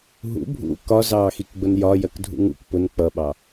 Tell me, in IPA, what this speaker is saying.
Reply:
ɦ ṵ bʱ ṵ k ɒ z ɑː x i k ɡ͡b ʊ n j ɒ j ɜ k dʱ ṵ ŋ ṵ k p ʊ n k͡p ʌ ɓ ɑ

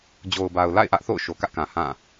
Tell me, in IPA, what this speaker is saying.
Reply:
d͡ʑ o˨ ʊ̯ b a˨ ʊ̯ l a̰˦˨ ɪ̯ ʔ ä˦ ʔ θ o̰˦˨ ʊ̯ ʃ o˨ k ä˦ ʔ k ã˨ h ã˦˨

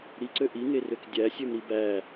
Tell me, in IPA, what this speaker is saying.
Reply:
ɾ i ǀ ø ʔ i ŋ e r ø k dʲ æ sʲ ø m ɾ i b æ

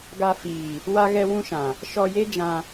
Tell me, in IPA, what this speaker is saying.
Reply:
ɡ a˧ f iː˨ | w a˧ ɣ ɛ˧ w ũ˧ ʃ ã˨ | ʃ ɔ˧ j e˦ d͡ʒ ã˧

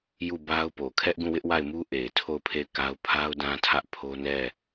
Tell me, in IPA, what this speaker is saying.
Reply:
j u˦˨ b a˦ ʊ̯ p o˨ kʰ ɛ˦ ʔ ɡ ũ˦˨ w ɪ˦ ʔ w a˦˨ ɪ̯ m u˦ ʔ e˨ ɪ̯ tʰ o˦˨ ʊ̯ pʰ e˦˨ ɪ̯ k a˦ ʊ̯ pʰ a˦ ʊ̯ d ã˦ tʰ ä˦ ʔ pʰ o˦ n ɛ˦˨

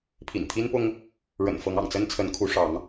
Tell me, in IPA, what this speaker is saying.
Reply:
pʰ ḭ˨˩ n t̪ʰ i˦ n p ʊ˦ ŋ | ɻ ə̰˨˩ n f ɤ˨˦ ŋ ɑ̰˨˩ ŋ t͡s ə˦ n t͡sʰ ə˨˦ n kʰ u˨˦ ʂ ɑ˨˦ ŋ

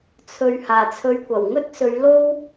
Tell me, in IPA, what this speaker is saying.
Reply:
t͡sʰ ɵ˨ ɥ h aː˨˩ t͡sʰ ɵ˨˧ ɥ kʷ ɐ˨˩ w ŋ ɵ˥ t̚ s ɵ˨˧ ɥ l o˥ w

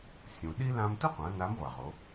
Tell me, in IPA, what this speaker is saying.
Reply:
sʲ ũ˩ ɗ i˥ l ã˧ m t ʊ˥ qʷ ã˩˧ n a˧˥ m ʁʷ a˩ ʁ o˩˧

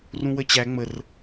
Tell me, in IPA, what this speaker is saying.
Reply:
r ũ w ə t͡ɕ æ ŋ͡m ə r

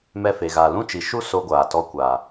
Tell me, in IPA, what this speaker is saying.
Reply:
m ɛ˧ f e˨ ɣ aː˨ l ũ˦ t͡ʃ i˨ ʃ u˦ s o˧ ɡʷ aː˨ t ɔ˧ kʷ aː˨

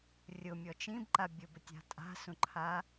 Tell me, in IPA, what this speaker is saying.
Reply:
rʲ ʊ mʲ ɔ t͡ʃ ĩ b ǃ a bʲ ʊ b ə tʲ a̤ tʼ a̤ s ũ ǃʰ a

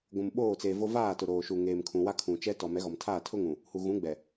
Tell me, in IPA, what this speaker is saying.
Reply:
ɡʷ ũ˨ m ɓ oː˦˨ t͡s eː˨ v o˦ v aː˦˨ t ʊ˨ ɾ oː˨ ʃ u˨ ŋ eː˨ m kʰ ũ˨ w a˦ kʰ ũ˨ t͡ʃ ɛ˦ t ɔ˨ m ɛ˨˦ ɣ ɔ˨ m tʰ aː˦˨ tʰ ʊ˦ ŋ ũ˨ | h u˨ ɣ ũ˨˦ ɡ͡b ɛ˨

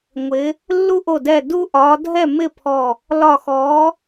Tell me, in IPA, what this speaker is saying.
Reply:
ŋʷ ɪ˨˦ | lː u˦ ʔ o˧˩ d ɛ˧˩ d u˦ ʔ ɒ˨˦ dʱ ɛ˥˨ m ɪ˥˨ pʰ ɔ˧˩ | l ɒ˧˩ x ɔ˨˦

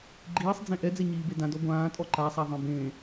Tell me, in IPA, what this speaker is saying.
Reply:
ɡ͡ǃ iː sˤ d͡z ẽ ʔ ɛ d͡z ɛ ɲ iː b e d ã d ɔ ɡʷ ãː tʼ ɔ ǃ a sˤ a ðˤ ẽ b ẽ

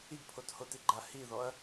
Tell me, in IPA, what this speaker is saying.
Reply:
i ɡ pʰ o t h o t i ɡ͡ǃ a h i ð ɔ ɐ̯

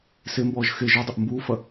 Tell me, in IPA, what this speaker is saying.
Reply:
s e m b ɔː ʒ x e ʒ u dˤ ɘ ʔ m b uː f ɐ

